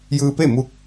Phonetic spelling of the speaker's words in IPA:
j ɯː˧ p e˥˨ m u˧˥ k̚

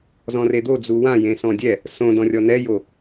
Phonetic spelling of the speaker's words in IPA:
z ɔ̃ r e d̪ o d͡z u w ã j ẽ s ɔ̃ dʲ ɛ | s õ d ɔ̃ rʲ ɔ n ɛ j o

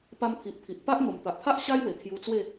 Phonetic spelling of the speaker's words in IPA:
p a˧ m t̪ʰ i˨ ʔ pʰ i˨ ʔ p a˦ ʔ n̪ o˨˩ m t̪ a˨ ʔ pʰ a˦ ʔ ɕ a˦ j w e˨˩ kʰ j u˧ t͡s w e˥˧

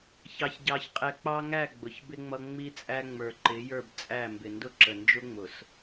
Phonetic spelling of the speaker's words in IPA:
ç ɑ˨ ç ɟ ɑ˨ ç qʼ ɛ˨ k͡p ɑ˦ ŋ æ˦˨ ɡ͡b ʊ˨ ç b ɪ˦ ŋ͡m ʌ˦ ŋ͡m i˦ t͡sʼ æ˦ ŋ͡m ə˞˨ ǃ ɪ˨˦ j ə˞˦˨ b t͡sʼ æ˦˨ m b ɪ˨ n d ʊ˦ ǁ ə˨ n d͡ʒ ʊ˦ ŋ͡m ʊ˨ s

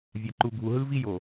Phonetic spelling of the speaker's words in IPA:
vʲ a˨ ǃ u˨ ɡʱ u˨ ɦ ɯ˦ v i˦ j o˨

